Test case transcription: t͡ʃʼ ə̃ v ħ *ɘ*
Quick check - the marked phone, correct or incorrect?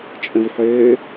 incorrect